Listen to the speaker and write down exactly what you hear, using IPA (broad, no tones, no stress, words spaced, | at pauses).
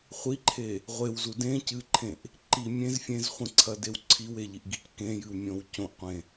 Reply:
χʷiǃʰe | ʁʷewzu dẽ cɨǃʰẽʔ | ǃi mʲẽz fʲẽzχʷĩǀʰɐdew ǀʰiweʎiʔɡic kẽjɨwmʲõw cõʔqʷẽ